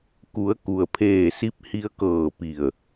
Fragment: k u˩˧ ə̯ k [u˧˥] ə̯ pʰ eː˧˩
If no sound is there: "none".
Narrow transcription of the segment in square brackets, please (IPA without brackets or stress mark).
u˩